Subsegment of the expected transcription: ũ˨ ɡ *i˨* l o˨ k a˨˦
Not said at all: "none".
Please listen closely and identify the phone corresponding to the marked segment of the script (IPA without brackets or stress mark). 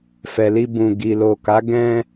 i˨